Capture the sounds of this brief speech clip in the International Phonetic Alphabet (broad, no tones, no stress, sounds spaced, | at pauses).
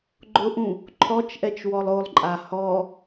ɡ͡ǃ ʊ ʔ ũ | ǃʰ ɔ t͡ʃ ʔ ɛ t͡ʃ w ɔ lˠ o lˠ ǃʼ a h ɔ